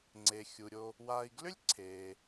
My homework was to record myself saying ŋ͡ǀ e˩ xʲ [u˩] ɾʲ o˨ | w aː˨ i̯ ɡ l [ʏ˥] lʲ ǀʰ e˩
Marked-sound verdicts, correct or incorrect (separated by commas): correct, correct